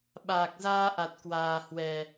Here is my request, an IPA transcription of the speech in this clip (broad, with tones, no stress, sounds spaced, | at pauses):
ɓ aː˨˩ k̚ z aː˧ ʔ a˨˩ t̚ k w aː˨˩ h w ɛ˨˩